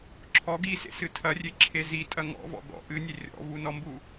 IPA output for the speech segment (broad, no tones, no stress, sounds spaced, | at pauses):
ǁʰ ɔ ɡ i s ḛ s ɨ tʰ ɐ rʲ e ǁʰ e z i tʼ ɐ ŋ ɔ̰ v ɔ̰ ɡ ɔ̰ ʔ ɨ nʲ e rʲ ɔ̰ v u n ɔ m b u